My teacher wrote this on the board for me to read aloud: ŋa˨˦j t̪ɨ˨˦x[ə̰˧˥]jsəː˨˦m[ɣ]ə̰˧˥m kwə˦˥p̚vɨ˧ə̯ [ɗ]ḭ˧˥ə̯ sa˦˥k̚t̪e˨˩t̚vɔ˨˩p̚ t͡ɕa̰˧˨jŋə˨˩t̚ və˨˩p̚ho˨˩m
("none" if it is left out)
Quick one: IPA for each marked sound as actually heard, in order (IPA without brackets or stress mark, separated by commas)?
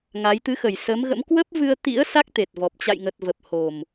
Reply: ə˨˩, ɣ, t̪